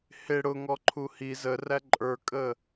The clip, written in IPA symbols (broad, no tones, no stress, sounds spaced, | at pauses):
h ɪ ɽ ʊ ŋ ɔ ǃʰ u h i z ə r æ ǃʼ ə˞ kʼ ə